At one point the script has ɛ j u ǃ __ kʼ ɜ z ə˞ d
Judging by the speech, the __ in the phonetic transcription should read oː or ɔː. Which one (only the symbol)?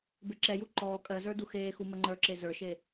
ɔː